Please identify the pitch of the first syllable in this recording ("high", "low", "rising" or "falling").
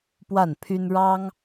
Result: falling